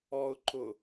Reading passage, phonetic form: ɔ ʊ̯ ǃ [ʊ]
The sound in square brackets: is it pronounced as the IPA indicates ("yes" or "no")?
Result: yes